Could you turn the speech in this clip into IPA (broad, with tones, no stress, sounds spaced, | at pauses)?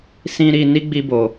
s ĩ˧ ɾ i˧ n i˦ ɡ͡b i˧ b o˨